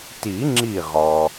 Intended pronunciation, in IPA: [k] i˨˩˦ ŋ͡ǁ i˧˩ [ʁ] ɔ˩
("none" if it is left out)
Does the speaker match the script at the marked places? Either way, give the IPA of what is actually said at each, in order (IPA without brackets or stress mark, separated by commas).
t, ʁ